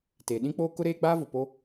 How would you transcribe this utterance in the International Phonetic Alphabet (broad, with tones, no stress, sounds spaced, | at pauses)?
t eː˨ ɗ ĩ˦ k͡p oː˦ k ʊ˦ ɾ eː˦ ɡ͡b aː˦ v ʊ˨ p o˦